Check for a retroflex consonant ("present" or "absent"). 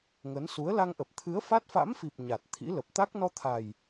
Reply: absent